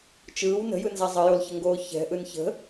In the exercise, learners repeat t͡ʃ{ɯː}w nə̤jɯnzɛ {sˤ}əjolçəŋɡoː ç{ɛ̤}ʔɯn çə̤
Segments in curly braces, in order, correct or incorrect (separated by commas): correct, incorrect, correct